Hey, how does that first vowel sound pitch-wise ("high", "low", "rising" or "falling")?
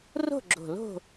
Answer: falling